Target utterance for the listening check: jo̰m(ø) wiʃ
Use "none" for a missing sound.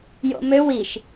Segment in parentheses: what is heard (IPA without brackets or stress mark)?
ø